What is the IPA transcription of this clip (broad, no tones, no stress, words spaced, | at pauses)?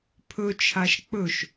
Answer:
pʰɵt͡ʃʰaʃ k͡pɵʃ